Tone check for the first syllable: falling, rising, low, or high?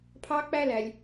high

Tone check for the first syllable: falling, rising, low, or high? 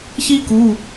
high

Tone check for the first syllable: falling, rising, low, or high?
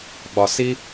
high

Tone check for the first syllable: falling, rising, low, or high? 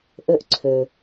high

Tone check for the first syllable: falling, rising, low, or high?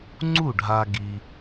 falling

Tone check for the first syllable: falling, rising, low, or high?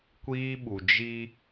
high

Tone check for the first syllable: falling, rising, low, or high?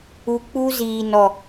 low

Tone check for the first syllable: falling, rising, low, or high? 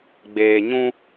low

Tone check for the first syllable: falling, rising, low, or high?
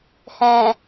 low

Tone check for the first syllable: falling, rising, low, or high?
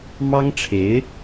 high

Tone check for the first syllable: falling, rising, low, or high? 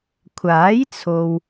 rising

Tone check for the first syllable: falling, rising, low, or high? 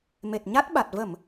low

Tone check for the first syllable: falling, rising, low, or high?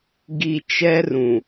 low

